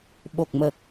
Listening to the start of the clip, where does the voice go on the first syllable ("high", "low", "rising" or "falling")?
low